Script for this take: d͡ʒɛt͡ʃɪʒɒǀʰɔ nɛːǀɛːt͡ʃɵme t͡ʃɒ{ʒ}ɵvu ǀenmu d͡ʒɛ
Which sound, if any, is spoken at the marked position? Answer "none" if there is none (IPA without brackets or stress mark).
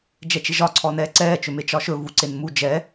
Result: ʃ